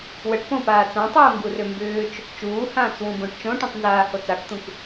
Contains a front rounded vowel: yes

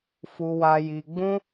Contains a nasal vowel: yes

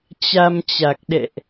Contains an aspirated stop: no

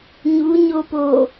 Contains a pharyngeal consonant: no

